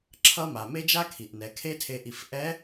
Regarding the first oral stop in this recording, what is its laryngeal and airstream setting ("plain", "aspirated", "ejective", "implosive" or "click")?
click